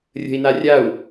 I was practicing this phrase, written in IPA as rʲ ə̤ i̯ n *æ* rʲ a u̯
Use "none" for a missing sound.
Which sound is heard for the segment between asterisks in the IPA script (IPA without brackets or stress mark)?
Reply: a